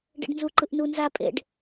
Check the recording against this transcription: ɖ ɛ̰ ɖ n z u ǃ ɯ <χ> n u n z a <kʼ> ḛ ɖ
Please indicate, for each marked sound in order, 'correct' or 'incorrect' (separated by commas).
incorrect, incorrect